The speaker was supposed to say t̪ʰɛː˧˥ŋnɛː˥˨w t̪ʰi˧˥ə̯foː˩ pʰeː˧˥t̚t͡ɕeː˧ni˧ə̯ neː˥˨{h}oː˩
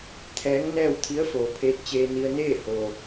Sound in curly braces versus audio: correct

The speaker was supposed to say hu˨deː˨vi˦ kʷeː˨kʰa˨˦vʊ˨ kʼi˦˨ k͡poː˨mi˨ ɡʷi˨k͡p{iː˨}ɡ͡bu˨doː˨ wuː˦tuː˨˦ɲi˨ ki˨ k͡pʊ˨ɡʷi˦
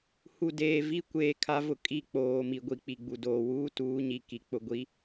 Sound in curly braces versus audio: incorrect: i˨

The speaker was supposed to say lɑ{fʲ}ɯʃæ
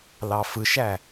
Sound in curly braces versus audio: incorrect: f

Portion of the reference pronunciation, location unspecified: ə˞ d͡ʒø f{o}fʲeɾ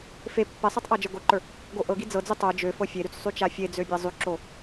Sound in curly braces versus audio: incorrect: ɤ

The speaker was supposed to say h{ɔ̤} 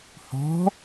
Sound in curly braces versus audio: correct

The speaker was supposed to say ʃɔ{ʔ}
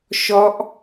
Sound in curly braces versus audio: correct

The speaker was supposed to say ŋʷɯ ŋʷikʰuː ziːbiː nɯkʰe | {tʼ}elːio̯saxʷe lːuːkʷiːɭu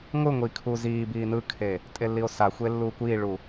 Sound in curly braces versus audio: correct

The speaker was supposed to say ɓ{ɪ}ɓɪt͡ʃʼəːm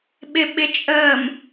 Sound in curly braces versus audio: correct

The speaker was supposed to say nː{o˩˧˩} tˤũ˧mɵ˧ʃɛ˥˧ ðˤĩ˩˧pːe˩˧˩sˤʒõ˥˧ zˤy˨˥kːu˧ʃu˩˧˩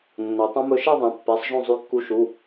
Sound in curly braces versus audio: incorrect: o˩˧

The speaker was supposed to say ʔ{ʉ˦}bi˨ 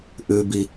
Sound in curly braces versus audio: incorrect: ʉ˨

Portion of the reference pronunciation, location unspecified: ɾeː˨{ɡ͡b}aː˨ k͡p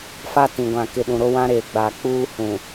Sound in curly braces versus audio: correct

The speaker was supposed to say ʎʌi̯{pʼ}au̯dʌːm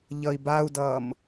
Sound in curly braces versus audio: incorrect: b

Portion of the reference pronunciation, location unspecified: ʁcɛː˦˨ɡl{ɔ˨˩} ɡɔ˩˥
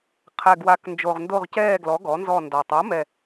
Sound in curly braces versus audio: incorrect: ɔ˩˥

